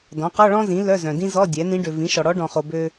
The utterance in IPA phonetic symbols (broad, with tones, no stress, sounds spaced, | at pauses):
d ɔ̃˩˥ q ɔ˧˥˧ ɭ ɔ̃˥ z ĩ˩˥ l œ˧˥˧ z œ̃˨ d ĩ˥ z ɔ˧˥˧ dʲ ɛ˩˥ n ĩ˧˥ ɖ ø˨ v ĩ˩˥ ʃ ɔ˨ ɽ ɔ˧˥ ɖ ɔ̃˨ χ o˨ b ø˥